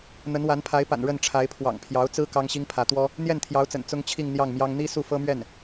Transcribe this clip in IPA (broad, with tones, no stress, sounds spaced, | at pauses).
n̪ ə˧˥ n w a˧˥ n pʰ a˧˥ ɪ̯ p a̰˨˩ n ɻ ə˥˩ n ʈ͡ʂʰ a˧˥ ɪ̯ pʰ w ɑ̰˨˩ ŋ pʰ j ɑ˧˥ ʊ̯ t͡s ɹ̩˥ k ɑ˥ ŋ ɕ i˥ ŋ pʰ ä˧˥ t̪ w ɔ˥ | n̪ j ɛ˥˩ n t̪ʰ j ɑ˧˥ ʊ̯ t͡s ə̰˨˩ n t͡s ʊ˥ ŋ t͡ɕʰ i˥˧ ŋ n̪ j ɑ˥˩ ŋ m j ɑ˥ ŋ n̪ i˥ s u˥˩ f ɤ˥ m ɥ ɛ˥˩ n